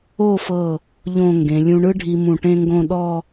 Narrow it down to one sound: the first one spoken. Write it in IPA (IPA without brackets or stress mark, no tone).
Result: o